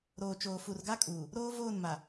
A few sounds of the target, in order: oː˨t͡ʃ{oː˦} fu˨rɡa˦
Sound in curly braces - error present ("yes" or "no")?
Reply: yes